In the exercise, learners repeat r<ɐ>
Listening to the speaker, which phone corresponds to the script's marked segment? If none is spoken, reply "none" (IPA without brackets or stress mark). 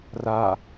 a